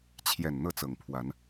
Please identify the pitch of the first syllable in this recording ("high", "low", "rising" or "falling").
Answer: low